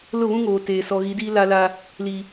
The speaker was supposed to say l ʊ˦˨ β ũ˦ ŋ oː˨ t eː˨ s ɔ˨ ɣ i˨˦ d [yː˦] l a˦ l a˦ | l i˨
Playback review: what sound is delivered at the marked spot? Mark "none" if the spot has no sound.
iː˦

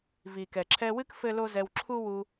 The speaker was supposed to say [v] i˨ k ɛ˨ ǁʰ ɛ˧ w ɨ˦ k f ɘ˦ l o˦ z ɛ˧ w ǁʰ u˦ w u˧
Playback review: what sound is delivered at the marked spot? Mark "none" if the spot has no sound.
v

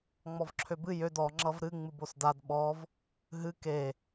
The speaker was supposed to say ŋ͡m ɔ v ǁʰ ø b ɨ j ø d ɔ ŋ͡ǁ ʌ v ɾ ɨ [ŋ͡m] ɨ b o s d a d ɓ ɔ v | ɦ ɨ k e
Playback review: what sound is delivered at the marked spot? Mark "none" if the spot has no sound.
ŋ͡m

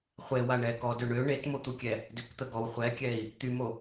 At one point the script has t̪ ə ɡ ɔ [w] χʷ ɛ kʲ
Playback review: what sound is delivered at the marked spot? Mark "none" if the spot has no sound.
w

